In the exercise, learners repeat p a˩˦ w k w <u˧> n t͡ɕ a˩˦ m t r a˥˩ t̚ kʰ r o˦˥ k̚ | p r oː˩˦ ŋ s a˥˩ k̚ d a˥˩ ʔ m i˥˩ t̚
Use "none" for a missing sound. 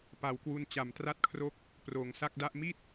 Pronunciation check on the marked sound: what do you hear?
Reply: u˧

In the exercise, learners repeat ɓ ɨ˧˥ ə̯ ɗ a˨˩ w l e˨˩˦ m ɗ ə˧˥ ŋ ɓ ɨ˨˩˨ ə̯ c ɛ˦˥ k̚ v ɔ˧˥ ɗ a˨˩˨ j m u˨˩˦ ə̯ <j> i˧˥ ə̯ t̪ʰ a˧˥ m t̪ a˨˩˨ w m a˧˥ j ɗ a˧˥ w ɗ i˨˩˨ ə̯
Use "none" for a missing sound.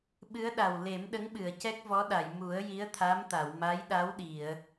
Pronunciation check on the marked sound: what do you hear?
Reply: j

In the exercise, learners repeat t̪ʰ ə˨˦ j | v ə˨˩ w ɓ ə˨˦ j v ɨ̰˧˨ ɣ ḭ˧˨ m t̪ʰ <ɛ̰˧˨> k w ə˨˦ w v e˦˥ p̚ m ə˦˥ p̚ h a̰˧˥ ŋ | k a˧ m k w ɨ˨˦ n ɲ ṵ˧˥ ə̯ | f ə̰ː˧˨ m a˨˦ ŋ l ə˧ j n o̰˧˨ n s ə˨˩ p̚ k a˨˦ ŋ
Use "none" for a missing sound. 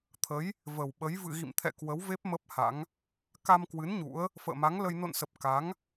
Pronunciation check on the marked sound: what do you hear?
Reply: ɛ̰˧˨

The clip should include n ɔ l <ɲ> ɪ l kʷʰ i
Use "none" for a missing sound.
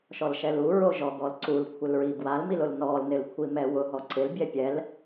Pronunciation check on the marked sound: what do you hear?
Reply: n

